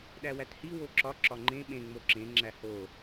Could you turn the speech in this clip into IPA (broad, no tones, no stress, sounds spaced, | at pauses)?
ɗ æ w æ t h i w o ǁ ɒ ǁ ɒ ŋ͡ǃ ẽ ɓ ẽ ŋ͡m o ǁ ẽ ŋ͡ǁ æ h o